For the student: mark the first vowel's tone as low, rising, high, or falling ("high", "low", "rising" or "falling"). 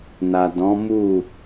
low